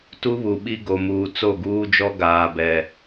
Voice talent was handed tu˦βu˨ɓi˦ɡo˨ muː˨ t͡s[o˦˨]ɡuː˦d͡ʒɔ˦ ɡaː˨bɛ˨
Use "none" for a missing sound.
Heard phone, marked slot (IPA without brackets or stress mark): o˦˨